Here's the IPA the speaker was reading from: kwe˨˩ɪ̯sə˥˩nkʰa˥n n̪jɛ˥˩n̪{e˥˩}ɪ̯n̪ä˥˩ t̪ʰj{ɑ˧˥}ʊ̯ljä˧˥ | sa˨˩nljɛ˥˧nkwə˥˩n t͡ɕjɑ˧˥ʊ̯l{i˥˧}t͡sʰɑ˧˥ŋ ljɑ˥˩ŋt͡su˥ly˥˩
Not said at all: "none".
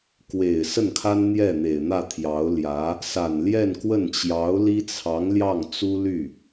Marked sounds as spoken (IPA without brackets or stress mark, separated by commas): e˨˩, ɑ˧˥, i˥